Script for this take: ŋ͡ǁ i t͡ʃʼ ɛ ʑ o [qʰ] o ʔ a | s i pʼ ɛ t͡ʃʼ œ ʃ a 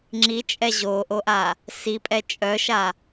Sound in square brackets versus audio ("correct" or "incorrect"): incorrect